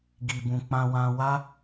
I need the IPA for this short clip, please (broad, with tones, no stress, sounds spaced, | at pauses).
ɡ i˨ b ũ˨ k͡p ã˧ w ã˧ w a˦